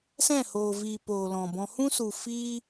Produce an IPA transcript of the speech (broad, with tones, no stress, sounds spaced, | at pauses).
s ɛ̃˦˨ h oː˨ v iː˨ p oː˨ l ɔ̃˨ b ɔ̃˧ h ũ˦ s u˨ f iː˦